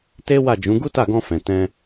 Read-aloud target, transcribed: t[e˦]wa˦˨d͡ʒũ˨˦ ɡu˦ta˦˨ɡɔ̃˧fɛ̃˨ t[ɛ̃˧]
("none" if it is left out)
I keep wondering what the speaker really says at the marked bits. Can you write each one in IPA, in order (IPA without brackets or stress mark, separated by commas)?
e˦, ɛ̃˧